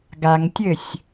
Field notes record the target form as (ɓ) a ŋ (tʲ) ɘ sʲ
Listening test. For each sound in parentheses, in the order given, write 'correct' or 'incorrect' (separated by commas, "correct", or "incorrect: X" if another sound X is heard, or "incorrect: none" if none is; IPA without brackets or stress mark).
incorrect: ɡ, correct